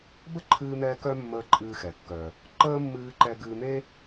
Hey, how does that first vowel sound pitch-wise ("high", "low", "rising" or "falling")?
high